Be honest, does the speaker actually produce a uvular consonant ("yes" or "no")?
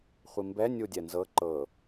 yes